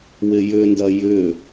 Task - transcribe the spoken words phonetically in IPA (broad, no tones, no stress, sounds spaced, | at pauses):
w ɪ j ʏ n d ɐ j ʏ